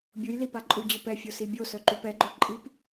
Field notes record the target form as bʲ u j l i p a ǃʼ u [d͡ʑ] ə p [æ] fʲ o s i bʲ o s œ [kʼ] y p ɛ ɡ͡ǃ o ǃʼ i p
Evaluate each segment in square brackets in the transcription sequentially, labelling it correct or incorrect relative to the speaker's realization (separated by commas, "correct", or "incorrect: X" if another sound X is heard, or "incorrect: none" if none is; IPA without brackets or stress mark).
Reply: correct, incorrect: ɛ, incorrect: ǃ